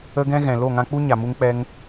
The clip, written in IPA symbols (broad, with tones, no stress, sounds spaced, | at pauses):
ə˦ ɡ ɛ̃˦ ɣ ɛ̃˨ l o˦˨ ŋ ã˧ k͡p u˦ ɲ a˨ m u˦ ŋ k͡p ɛ˦ ŋ